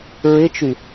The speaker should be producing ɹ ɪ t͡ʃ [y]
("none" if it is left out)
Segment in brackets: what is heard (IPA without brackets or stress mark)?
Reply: y